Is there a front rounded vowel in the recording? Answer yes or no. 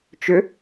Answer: yes